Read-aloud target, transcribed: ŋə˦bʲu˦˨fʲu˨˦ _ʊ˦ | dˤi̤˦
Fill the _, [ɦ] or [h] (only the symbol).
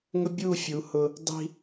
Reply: h